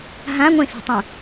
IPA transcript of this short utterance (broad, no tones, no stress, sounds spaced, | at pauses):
ɦ ã ŋʷ ẽ s ṳ tˤ ũ